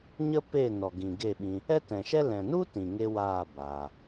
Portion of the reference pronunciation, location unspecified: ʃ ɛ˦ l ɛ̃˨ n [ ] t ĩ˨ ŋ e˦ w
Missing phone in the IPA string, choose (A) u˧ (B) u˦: B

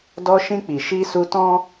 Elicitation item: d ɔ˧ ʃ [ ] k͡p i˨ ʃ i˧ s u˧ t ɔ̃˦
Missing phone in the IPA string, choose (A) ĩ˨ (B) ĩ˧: B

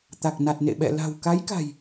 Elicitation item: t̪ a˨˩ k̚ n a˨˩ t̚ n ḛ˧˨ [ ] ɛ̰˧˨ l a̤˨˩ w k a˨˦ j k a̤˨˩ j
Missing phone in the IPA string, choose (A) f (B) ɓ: B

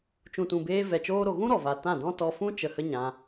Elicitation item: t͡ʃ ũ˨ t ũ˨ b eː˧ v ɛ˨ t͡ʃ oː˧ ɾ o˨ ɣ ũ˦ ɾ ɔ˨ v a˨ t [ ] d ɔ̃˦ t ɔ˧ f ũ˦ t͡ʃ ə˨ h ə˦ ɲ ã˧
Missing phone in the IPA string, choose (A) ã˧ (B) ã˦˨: B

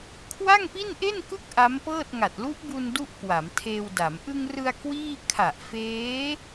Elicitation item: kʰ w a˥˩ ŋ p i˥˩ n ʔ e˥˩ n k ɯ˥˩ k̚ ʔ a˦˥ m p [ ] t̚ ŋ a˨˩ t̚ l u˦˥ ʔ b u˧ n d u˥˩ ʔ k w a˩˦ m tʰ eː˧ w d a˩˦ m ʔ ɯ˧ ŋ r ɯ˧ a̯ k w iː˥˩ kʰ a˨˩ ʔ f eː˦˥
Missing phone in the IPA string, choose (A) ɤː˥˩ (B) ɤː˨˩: A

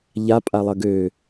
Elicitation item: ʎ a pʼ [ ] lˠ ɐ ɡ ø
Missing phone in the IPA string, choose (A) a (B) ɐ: A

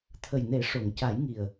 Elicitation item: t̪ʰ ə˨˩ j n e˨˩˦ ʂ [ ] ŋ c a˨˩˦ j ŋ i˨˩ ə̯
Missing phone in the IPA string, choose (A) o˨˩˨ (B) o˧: A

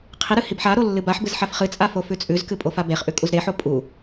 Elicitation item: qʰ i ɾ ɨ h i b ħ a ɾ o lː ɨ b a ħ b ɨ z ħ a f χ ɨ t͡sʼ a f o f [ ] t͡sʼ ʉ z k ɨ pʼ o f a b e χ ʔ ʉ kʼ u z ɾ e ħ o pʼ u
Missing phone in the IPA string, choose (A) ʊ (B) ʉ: B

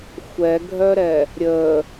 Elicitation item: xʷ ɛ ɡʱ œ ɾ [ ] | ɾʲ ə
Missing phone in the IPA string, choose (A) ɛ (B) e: A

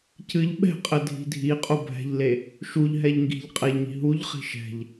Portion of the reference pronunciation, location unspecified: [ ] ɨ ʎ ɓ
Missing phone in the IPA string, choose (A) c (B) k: A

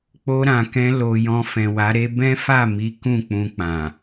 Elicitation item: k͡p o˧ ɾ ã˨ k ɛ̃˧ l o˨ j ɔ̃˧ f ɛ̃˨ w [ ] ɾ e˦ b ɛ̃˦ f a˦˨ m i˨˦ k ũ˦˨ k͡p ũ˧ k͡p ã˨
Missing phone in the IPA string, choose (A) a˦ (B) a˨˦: B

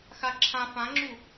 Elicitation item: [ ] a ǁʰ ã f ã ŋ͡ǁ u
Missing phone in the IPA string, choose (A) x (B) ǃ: A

